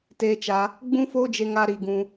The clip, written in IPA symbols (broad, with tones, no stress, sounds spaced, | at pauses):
t eː˧ t͡ʃ a˧ | ɡ͡b ũ˦ f oː˦ d͡ʒ e˧ ŋ a˧ ɾ i˧ ɡ ũ˧